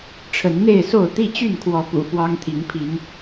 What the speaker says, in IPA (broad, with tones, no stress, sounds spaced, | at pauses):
ʈ͡ʂʰ ə˨˦ n n̪ e˥˨ ɪ̯ s o˥˨ ʊ̯ t̪ i˥˨ t͡ɕ y˥˨ n kʰ w ɔ˨˦ p ṵ˨˩ f w ɑ˦ ŋ t̪ʰ i˨˦ ŋ pʰ i˨˦ ŋ